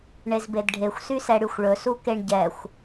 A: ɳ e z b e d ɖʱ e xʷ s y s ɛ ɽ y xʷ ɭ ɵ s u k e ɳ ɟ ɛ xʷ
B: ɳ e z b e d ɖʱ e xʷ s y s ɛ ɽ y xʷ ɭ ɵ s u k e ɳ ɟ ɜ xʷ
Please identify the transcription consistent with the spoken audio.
A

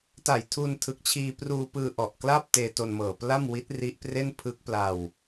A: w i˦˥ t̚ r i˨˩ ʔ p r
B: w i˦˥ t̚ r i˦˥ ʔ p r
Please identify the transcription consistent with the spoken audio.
B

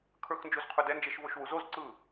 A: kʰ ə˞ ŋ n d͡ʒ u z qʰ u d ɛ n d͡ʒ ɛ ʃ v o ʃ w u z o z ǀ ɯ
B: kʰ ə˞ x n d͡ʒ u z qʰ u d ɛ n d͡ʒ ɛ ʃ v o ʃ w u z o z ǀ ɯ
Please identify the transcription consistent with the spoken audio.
B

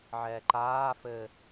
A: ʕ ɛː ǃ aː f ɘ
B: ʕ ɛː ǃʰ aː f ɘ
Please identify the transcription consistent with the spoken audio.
A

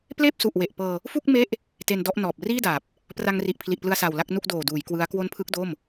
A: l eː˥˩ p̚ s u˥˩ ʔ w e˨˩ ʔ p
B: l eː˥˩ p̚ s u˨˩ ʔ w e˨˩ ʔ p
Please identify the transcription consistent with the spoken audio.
B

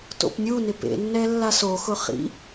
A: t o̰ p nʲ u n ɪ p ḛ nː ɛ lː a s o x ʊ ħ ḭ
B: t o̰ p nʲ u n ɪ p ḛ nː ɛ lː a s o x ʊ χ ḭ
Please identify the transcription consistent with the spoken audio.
B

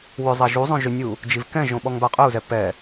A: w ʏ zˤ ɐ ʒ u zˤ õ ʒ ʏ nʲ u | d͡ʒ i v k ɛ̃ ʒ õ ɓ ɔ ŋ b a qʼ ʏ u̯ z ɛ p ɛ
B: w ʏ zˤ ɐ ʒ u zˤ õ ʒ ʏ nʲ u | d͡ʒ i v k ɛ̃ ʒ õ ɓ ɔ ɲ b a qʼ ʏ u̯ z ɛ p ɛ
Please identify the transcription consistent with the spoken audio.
A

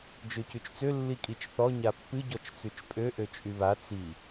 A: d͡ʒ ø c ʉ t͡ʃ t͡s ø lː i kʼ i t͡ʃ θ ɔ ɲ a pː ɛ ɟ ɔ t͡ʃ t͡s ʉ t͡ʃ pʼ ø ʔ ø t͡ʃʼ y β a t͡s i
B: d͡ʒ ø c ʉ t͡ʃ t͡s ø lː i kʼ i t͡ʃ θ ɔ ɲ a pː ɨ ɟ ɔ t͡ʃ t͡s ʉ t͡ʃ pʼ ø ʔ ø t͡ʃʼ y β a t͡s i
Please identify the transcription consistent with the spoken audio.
B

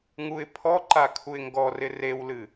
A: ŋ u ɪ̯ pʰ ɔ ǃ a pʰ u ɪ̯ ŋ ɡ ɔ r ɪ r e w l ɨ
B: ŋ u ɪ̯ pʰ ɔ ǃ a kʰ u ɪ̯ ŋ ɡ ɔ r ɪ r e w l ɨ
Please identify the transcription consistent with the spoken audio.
B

